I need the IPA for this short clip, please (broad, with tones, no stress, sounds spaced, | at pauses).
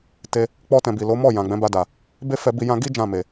t e˧ | k͡p ɔ˦ t ɛ̃˧ b i˨ l o˨˦ m ɔ˦˨ j ã˨ ɡ͡b ɛ̃˨˦ b a˧ d a˨ | b e˦ f ɛ˧ b i˧ j ã˧ ɡ i˦ d͡ʒ ã˦˨ m e˨